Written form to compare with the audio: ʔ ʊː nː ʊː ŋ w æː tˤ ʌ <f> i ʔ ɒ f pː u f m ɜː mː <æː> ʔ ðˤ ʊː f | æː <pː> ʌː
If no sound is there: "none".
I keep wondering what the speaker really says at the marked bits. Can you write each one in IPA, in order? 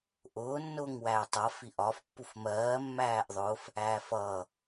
f, æː, f

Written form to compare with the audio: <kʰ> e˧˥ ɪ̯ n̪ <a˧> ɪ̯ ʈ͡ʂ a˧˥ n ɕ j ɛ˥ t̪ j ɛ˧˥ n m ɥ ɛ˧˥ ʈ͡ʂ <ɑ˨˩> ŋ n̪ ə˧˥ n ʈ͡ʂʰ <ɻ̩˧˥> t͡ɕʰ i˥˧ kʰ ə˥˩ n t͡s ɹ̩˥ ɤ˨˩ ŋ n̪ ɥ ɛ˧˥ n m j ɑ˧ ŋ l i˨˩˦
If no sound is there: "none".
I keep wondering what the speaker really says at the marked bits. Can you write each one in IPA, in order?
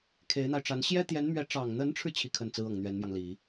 kʰ, a˧, ɑ˨˩, ɻ̩˧

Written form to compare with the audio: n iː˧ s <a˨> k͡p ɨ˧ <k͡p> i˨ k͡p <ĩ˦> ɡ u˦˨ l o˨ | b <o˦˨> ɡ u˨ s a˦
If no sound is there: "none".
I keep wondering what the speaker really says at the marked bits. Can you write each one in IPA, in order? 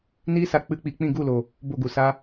a˨, k͡p, ĩ˦˨, o˦˨

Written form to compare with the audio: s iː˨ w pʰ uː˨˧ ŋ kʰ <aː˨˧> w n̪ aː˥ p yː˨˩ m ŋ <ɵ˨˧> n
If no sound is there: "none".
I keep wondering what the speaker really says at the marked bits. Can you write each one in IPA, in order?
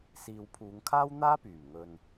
aː˥, ɵ˨

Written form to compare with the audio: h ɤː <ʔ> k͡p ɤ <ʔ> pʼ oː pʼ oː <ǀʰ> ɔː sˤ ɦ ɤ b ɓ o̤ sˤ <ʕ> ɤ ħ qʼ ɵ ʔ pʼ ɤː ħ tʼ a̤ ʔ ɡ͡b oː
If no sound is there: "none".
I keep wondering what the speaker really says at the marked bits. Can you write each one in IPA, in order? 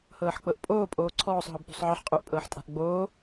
ħ, ʔ, ǀʰ, ʕ

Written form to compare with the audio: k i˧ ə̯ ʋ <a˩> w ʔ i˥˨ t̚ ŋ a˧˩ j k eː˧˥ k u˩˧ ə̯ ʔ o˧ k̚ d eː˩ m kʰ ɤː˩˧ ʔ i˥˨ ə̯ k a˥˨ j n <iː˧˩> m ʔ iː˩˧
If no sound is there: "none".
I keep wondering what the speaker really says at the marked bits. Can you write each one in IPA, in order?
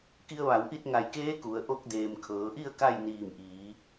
a˩˧, iː˧˩

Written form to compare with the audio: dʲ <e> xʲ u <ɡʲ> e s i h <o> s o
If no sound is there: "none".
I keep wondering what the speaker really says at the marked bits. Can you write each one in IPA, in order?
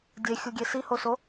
e, ɡʲ, o

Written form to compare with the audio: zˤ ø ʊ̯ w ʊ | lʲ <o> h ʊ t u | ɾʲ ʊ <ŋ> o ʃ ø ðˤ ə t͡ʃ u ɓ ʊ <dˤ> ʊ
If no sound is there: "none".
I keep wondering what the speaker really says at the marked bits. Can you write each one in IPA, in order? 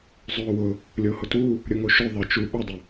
o, ŋ, dˤ

